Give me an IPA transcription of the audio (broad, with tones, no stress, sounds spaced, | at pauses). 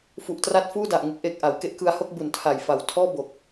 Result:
f u˨˩ ʔ t r a˦˥ t̚ f uː˥˩ d a˨˩ ʔ ŋ ɯ˦˥ k̚ ʔ e˨˩ k̚ ʔ a˩˦ w k e˦˥ ʔ k ɯ˧ a̯ h o˥˩ k̚ b u˨˩ n tʰ a˨˩ j f a˨˩ w tʰ ɔː˥˩ b o˨˩ k̚